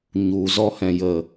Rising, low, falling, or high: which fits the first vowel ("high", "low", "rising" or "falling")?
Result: low